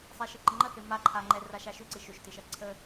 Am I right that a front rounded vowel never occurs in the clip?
no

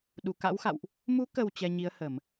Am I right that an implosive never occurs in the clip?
no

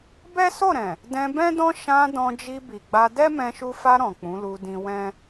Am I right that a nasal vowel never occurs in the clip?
no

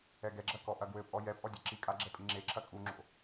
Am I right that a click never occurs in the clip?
no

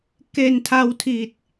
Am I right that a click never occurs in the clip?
yes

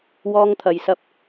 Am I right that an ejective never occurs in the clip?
yes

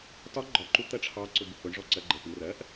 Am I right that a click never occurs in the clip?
no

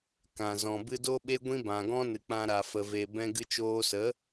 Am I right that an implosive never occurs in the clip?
no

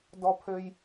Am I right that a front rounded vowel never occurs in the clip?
no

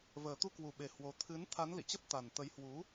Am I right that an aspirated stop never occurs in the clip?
no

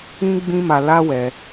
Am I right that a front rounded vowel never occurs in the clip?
yes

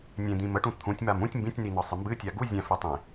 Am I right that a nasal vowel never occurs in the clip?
no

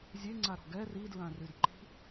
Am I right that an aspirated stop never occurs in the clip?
yes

